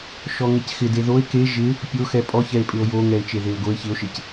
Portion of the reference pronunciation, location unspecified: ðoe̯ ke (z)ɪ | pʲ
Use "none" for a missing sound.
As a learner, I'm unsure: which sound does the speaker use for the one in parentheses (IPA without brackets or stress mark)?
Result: ʒ